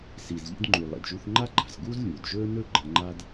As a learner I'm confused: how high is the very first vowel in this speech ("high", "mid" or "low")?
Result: high